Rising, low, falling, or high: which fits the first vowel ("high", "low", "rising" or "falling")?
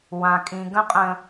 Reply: low